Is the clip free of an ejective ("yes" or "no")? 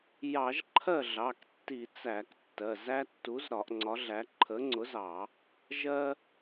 yes